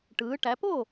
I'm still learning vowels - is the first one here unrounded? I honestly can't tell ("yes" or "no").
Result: yes